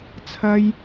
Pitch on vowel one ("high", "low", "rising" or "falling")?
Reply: low